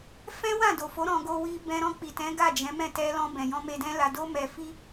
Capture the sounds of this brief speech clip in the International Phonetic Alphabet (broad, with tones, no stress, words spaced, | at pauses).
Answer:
fɛ̃˦ wã˦˨do˨fo˨˦ ɾɔ̃˧ ɡo˧wi˧ bɛ̃˧ɾɔ̃˧k͡pi˨tɛ̃˨˦ ɡa˦˨d͡ʒɛ̃˨˦mɛ̃˦˨ tɛ˧lɔ̃˧ bɛ̃˨jɔ̃˧me˧dɛ̃˦ la˧do˦ mɛ˧fi˦